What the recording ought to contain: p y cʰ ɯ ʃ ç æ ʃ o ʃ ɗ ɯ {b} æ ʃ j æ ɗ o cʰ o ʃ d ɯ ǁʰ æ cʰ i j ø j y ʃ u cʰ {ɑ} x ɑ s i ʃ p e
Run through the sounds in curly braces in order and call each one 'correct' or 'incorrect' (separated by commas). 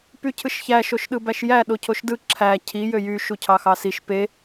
correct, correct